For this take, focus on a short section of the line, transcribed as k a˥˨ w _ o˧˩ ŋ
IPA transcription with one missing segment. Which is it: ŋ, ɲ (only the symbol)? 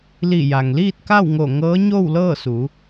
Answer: ŋ